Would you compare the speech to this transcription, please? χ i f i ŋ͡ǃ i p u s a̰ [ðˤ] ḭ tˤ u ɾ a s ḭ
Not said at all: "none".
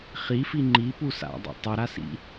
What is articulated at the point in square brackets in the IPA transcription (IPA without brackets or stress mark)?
dˤ